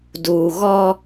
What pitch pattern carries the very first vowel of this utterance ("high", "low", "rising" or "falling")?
low